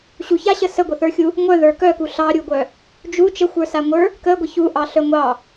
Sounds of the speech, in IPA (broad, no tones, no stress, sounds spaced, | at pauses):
ɕ u ç a ɕ ə s ə ɡʷ ə θ ə˞ xʲ u | ŋʷ œ ð ə˞ k œ k u ɬ ɑ ɾʲ u ɡʷ œ | d͡ʒ u t͡ʃ ə xʷ ə˞ s a ŋʷ ə˞ | k ə ɡʷ ə ç u ʔ ɑ ɬ œ ŋʷ ɑ